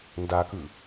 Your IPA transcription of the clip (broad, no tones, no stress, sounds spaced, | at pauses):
n d a k ɯ